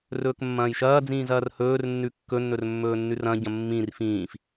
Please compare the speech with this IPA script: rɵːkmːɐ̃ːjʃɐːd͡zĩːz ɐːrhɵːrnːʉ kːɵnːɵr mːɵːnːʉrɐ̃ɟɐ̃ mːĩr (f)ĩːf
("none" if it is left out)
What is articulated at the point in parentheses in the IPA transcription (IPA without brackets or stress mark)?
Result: f